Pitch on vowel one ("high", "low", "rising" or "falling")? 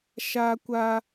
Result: high